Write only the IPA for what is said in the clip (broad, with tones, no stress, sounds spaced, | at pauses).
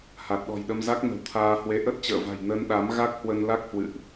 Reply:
h a˨˩ t̚ ɗ ɔ̤˨˩ j ɗ ə˧ m z a˦˥ k̚ n ə̤˨˩ w t̪ʰ aː˧ h w e˧ ʔ ə˦˥ t̚ t͡ɕ ə̰ː˧˨ v a̤˨˩ j n ə˧ n ɗ a˨˦ m ɣ a˦˥ k̚ h w ə˧ n l a˦˥ k̚ h w ɨ̰˧˨ ʔ